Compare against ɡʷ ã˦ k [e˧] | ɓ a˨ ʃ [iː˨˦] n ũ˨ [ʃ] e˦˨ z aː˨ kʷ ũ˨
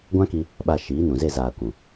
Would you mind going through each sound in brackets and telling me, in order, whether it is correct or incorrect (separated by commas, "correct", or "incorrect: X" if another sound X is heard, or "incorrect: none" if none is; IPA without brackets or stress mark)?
incorrect: i˧, correct, incorrect: z